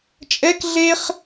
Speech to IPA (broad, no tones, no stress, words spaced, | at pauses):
t͡ʃʼɛk ɮeχ